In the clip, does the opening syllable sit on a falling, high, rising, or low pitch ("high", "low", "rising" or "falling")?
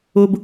high